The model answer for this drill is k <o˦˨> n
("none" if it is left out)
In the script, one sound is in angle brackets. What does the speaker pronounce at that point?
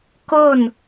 o˦˨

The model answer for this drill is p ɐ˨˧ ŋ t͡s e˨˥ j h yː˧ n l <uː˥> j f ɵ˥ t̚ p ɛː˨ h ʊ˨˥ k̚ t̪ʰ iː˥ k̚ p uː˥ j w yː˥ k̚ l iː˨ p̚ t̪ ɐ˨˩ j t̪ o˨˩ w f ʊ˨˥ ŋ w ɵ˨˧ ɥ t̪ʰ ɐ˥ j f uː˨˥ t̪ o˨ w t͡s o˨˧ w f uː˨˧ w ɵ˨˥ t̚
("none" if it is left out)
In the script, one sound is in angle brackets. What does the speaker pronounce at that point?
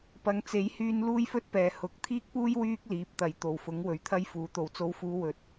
uː˥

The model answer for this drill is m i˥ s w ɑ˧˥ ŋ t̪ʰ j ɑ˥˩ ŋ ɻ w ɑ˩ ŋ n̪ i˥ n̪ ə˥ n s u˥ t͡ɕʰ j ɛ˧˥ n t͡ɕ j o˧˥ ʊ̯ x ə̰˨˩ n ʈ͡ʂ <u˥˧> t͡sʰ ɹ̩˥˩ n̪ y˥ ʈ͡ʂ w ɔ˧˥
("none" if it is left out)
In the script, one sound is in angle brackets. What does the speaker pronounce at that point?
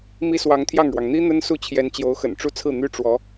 u˥˧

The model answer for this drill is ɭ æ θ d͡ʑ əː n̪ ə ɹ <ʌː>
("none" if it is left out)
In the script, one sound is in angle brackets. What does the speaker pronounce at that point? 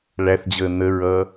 ʌː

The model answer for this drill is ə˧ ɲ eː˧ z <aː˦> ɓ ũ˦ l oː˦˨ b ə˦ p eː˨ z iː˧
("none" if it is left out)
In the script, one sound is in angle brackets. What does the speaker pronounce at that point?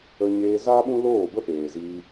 aː˦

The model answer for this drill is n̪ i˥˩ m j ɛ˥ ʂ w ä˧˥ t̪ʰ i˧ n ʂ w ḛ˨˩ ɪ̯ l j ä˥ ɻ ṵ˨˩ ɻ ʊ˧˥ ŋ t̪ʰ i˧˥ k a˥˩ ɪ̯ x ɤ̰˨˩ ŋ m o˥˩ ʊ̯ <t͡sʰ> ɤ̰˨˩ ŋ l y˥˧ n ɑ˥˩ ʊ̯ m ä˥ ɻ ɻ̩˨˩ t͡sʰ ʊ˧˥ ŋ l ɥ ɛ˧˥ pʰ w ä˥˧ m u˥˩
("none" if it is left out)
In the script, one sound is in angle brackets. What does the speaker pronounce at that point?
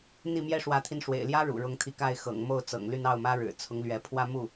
t͡s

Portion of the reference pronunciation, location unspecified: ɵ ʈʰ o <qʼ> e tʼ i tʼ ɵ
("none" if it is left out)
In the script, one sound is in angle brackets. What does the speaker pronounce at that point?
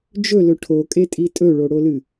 kʼ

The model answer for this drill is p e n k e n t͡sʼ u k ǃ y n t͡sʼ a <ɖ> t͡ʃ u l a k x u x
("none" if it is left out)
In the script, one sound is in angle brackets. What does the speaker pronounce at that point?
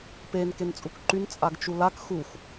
ɡ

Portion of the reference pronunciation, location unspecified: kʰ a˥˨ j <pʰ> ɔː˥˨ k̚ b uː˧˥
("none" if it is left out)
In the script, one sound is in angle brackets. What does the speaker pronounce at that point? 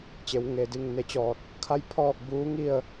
pʰ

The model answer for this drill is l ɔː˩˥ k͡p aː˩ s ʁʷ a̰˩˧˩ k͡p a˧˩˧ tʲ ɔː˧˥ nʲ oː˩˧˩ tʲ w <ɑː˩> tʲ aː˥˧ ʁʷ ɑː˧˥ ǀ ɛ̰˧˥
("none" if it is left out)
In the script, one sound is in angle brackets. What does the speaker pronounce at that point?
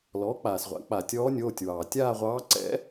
ɑː˩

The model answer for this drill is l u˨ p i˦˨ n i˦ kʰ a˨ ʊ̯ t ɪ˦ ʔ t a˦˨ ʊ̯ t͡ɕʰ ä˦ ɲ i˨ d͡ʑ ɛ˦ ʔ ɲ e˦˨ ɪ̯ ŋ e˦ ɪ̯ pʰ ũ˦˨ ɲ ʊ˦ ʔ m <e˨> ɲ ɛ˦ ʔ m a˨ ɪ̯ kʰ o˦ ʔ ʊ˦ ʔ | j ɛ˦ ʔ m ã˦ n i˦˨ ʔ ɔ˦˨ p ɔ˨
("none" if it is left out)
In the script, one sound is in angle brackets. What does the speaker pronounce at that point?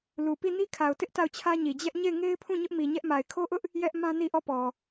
i˨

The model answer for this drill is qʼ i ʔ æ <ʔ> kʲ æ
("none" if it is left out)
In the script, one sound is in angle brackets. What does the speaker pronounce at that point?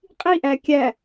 none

